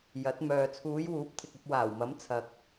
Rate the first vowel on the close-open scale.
open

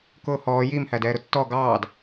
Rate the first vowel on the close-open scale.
close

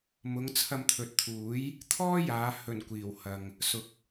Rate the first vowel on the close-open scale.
close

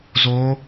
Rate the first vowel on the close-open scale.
mid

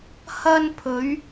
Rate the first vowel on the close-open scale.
open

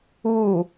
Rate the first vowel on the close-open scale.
close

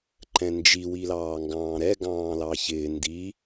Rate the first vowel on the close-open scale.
mid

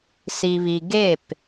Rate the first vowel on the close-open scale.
close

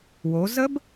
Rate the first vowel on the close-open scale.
mid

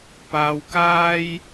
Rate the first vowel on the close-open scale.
open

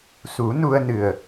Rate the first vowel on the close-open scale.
close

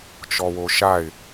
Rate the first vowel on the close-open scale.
mid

